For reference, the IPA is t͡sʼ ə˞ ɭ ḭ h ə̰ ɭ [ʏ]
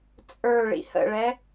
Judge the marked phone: incorrect: ɛ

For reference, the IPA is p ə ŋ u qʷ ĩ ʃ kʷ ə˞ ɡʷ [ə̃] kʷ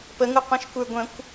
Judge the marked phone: correct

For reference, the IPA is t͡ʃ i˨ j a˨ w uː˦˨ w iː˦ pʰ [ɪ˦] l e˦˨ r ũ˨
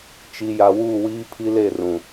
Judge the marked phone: incorrect: i˦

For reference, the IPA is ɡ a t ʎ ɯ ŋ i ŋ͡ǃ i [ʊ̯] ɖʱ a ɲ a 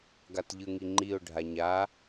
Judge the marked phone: correct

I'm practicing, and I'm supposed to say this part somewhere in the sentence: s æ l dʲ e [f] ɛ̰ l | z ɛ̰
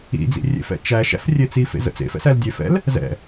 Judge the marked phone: correct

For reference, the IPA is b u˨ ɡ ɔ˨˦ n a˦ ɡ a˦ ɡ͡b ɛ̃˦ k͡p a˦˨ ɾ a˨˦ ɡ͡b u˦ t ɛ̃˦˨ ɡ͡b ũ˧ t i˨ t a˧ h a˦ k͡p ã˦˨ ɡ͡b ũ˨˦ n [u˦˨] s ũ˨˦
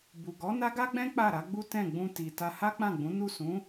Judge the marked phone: correct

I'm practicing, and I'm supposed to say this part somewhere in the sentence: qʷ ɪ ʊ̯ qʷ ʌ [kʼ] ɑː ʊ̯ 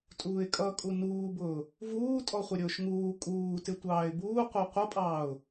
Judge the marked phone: incorrect: pʼ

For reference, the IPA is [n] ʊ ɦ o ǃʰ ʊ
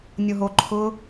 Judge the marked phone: incorrect: nʲ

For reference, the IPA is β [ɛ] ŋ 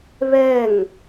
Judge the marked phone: correct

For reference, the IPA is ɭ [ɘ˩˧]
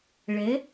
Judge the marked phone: correct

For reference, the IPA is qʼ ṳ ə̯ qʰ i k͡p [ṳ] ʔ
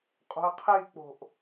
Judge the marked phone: incorrect: o̤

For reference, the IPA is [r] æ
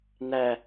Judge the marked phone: incorrect: n̪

